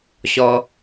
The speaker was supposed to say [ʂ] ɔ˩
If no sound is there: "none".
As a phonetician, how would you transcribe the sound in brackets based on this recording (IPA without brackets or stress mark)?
ɕ